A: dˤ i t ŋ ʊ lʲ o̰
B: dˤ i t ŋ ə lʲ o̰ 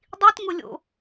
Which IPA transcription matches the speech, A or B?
A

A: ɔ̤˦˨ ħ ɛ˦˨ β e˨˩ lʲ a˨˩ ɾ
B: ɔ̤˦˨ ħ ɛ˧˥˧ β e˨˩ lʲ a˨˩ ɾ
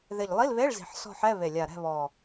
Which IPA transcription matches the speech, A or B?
B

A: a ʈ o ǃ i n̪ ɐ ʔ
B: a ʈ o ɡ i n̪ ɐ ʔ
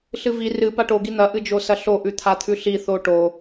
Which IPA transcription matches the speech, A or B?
B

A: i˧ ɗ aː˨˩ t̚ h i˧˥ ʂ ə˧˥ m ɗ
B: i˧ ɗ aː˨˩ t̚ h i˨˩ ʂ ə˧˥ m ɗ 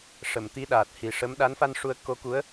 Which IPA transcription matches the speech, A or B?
B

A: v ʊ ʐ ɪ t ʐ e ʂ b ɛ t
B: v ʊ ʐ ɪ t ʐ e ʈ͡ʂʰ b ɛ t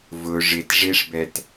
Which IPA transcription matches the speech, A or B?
A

